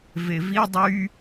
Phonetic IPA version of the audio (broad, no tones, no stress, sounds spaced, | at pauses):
v e v i dˤ y